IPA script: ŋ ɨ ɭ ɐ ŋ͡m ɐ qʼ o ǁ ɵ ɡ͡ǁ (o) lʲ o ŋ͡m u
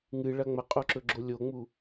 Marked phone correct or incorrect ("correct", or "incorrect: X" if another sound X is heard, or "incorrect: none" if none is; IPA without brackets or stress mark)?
correct